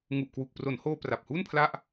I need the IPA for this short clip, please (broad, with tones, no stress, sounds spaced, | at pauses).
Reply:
ŋ u˨˩ ʔ k w u˨˩ k̚ p r o˩˦ n h oː˧ p r a˨˩ p̚ h u˥˩ n pʰ l a˥˩ ʔ